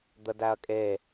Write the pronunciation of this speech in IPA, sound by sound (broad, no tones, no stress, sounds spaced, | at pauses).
d̪ ə d æ ɐ̯ kʼ e